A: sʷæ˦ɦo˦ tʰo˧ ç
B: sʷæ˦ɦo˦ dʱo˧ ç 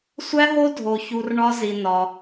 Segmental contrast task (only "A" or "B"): B